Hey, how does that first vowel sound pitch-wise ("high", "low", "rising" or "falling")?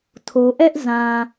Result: low